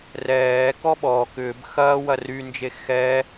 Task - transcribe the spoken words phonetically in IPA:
rɛː kɔɓɔ kʏːb xɐːwɐ rynd͡ʒe xɛː

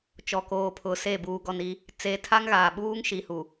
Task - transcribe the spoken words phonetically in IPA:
t͡ʃɔ˨koː˨pʰʊ˨ se˦˨ buː˨ɡɔ˨n i˦ | t͡se˨˦tʰa˦ŋɣaː˨ ɓuː˦ŋʃi˨hu˨

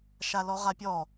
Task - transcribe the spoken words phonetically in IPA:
ʃalɔʁapʲɔ

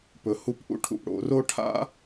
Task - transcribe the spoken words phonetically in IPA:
pɵ˩˥hu˥pʔṵ˥ ʈʰṵ˨pɽo̰˨˩˦ro˥ʈʰa̰˥

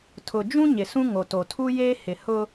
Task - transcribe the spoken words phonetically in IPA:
tʰʊ˨ d͡ʒũ˦ ɲɪ˨sũ˦ ŋo˨to˨ tʰu˦ jeː˦hɪ˨hʊ˦

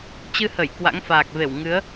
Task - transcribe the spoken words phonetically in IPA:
t͡ɕɨ˧hə˧˩j kwa̰˧˥ŋfaː˨˩k̚ve˧˩w ŋɨ˨˦ə̯

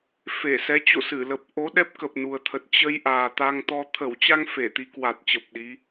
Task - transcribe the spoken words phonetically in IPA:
fe˧˩sɛ˨˦t͡ɕo̰˧˨sɨ˧˩ lə˨˩p̚ ʔo˨˦ ɗɛ˦˥p̚kə˨˩p̚nu˨˩ə̯t̪ʰə˨˩t̚ t͡ɕə˧j ʔaː˨˩t̪a˧ŋt̪ɔ˧ t̪ʰə˧˩wt͡ɕa˧ŋ fe˧˩t̪i˨˦kwa˨˩t̚t͡ɕə˨˩p̚ ɗi˨˦

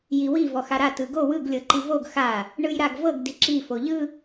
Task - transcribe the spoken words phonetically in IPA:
jiwi vɔxaɾa tɯɡo wɯɡ lʲɤǃivoɡ xa | ɳɯjɾaɡvɤɡ diǁi foʎɯ

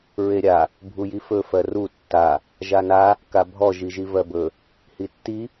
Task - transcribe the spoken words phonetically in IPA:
ɹeɾʲa | bʱujifɵ fɜru tːa | ʒana | kabʱɔ ʒiʒivɜbɵ | hitːi

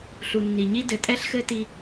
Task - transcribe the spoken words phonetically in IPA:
ɬu˨nːi˨ɲi˦ dɘ˨tʼɛ˦ɬxɘ˦ti˦

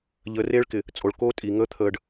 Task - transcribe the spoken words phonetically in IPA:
ʎəː˨reː˦ɭkɪ˨ | t͡sʼo˨ɭkoː˦ tʼi˨ ŋəː˦t̪ʰəː˨ɖ

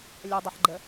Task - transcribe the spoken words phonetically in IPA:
lʲɐdˤʌħɡ͡ǃə

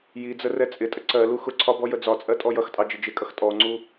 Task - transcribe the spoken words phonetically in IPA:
jid͡zə rɛt͡sʼɪtʼə ǀɜ luxʊǀʰɒ bɔjəd͡zɒt͡sʼɜ tʼɔjʌxtʼɑ d͡ʒɪd͡ʒɪkʼʌx tʼɔŋ͡ǀu

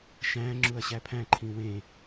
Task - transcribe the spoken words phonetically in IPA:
ʃæ̃ ŋ͡ǁuɐ̯ɕæpʰæ̃ǃʰĩ wẽ

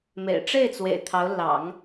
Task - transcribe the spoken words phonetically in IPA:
mḛ˨˩ɪ̯ʈ͡ʂe˥˩ɪ̯t͡swḛ˨˩ɪ̯ t̪ʰɑ˧˥ʊ̯ lɑ̰˨˩˦ŋ

